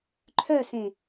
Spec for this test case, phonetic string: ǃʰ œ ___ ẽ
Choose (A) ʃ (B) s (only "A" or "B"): B